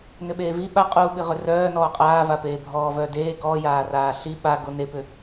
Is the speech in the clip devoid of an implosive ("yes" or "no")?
no